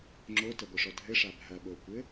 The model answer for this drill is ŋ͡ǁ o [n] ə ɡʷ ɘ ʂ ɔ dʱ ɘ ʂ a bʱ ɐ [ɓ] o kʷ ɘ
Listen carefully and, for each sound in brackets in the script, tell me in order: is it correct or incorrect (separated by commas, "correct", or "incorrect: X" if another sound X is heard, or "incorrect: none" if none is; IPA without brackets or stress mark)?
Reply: incorrect: t, correct